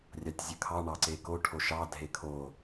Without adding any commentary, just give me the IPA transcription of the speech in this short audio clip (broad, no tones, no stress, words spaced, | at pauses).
rʲɑtʲzʲəkʰɑ ɳɑǀeko ʈʰoʃɑ dʱekʰo